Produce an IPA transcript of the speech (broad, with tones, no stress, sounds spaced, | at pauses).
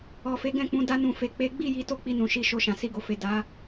ɔ˨ f e˨˦ ɡ ɛ̃˦˨ k͡p ũ˨˦ d a˧ n ũ˨ f e˨ k͡p e˨˦ ɡ͡b i˦˨ j i˨˦ t o˦˨ k͡p i˧ n ũ˨ ʃ i˧ ʃ o˧ ʃ ã˨ s i˧ ɡ o˨ f e˨ d a˨˦